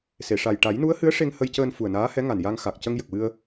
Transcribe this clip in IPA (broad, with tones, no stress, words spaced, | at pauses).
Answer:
se˨˩˨ʂa˨˩j ʈa˨˩˦jnu˧˥ə̯ hɨ˧˥ə̯ ʂe˧ŋhə˧jcəː˧n fu˨˩ə̯naː˧˥hɛ˧˥ŋa˨˩n ja˧ŋxa˨˩k̚ cə˧ŋjə˨˩k̚wɨ˧ə̯